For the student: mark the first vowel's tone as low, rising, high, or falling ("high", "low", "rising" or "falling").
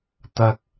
high